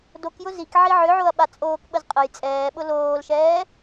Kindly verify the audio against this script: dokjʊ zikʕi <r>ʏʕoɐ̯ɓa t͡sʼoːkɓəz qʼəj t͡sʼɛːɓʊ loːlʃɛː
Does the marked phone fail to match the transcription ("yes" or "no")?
yes